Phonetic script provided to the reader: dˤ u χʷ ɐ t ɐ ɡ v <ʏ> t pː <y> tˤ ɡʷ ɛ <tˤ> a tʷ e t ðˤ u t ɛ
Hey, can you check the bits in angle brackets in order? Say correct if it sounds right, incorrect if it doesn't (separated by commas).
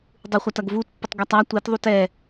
incorrect, incorrect, correct